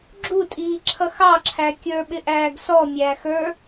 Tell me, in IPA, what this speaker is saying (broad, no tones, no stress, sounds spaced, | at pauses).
ɡ͡ǁ u tʼ iː ǁʰ ʌ x ɑ ǁʰ æ kʲ ə˞ ɓ ɪ ʔ æː ɡ s ɔ mʲ æː x ə˞